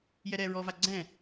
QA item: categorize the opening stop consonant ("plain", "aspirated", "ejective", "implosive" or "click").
click